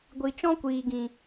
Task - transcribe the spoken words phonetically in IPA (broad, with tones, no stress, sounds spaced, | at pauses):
ɡʷ i˨ t͡ʃ ɔ̃˦ kʷ iː˨ ɡ ĩ˨